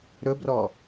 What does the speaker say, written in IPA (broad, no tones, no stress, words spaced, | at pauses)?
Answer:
ɾɵbrɔ